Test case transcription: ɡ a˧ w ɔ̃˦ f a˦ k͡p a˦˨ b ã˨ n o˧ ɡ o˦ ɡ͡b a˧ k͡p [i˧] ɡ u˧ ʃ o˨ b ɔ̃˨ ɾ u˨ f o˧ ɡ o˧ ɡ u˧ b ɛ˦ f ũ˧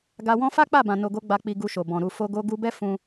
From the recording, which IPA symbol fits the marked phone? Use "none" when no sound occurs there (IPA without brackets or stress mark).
i˧